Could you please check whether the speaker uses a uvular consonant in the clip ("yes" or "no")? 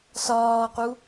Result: yes